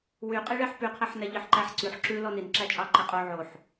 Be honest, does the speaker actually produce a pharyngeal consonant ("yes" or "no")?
yes